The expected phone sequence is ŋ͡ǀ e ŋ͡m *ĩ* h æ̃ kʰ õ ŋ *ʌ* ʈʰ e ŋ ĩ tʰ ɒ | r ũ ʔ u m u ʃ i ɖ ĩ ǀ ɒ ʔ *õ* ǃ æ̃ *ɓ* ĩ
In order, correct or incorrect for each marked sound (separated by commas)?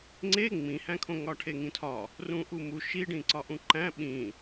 correct, incorrect, incorrect, correct